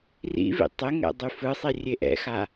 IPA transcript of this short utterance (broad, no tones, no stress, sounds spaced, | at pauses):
r ḭ v ḭ tˤ e ŋ ɛ̰ dˤ y f ɯ sˤ i rʲ e ʔ ɛ̰ x a